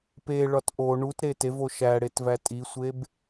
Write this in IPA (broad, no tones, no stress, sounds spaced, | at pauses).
p e ɭ ɒ t ʔ o ɳ u t ɾ e t e v o ʃ æ ɽ e t v æ tʼ i sʷ e b